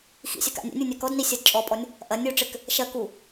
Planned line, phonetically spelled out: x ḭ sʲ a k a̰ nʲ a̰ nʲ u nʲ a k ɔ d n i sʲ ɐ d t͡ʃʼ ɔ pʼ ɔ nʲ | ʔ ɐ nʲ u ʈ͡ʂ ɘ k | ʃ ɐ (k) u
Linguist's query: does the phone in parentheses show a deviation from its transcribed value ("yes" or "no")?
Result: no